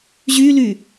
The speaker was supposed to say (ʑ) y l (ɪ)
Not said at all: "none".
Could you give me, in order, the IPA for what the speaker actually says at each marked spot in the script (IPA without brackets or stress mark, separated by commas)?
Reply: ʑ, y